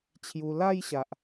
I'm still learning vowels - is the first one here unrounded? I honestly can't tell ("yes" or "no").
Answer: no